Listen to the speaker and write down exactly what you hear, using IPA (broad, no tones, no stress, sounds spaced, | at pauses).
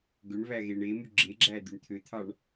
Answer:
ɡ ø ɳ β æ ɣ e ɳ e m y ɡ͡ǁ e ɡ͡ǁ æ d̪ y ɳ t̪ʰ ø t̪ʰ ɑ ɳ